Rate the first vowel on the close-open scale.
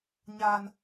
open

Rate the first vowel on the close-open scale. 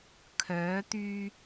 mid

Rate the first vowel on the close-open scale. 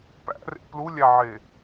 open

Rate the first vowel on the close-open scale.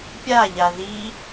open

